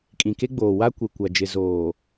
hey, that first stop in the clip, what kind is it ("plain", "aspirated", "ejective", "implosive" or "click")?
ejective